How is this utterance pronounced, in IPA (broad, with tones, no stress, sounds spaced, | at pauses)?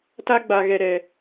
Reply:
t a˦ ɡ͡b a˨ ɣ ɛ˨ ɾ ɛ˨